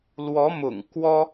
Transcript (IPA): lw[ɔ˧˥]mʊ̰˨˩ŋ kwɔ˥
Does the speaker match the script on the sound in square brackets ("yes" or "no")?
yes